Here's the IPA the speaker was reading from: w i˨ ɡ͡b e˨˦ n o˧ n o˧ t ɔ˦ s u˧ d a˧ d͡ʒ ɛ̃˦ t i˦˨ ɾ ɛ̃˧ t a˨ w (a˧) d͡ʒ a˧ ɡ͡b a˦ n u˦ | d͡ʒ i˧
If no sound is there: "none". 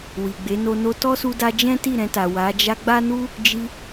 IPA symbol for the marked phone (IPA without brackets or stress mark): a˨˦